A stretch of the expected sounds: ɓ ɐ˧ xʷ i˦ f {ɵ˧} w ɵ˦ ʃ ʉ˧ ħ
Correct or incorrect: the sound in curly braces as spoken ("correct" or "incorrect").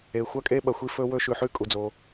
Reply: incorrect